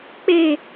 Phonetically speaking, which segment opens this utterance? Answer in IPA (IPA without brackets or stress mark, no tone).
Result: k͡p